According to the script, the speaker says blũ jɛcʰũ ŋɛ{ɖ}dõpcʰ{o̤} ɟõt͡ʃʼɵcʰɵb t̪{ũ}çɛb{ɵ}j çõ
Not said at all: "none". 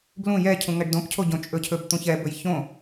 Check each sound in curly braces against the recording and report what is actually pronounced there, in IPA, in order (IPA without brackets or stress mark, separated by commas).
ɖ, o, ũ, ɵ